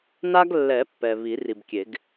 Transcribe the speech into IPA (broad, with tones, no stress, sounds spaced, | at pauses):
n a˦ ɡ lː ɛ˨˩˦ pː ɛ˨ β i˨˩˦ r i˨ b kʲ e˨˩˦ ɡ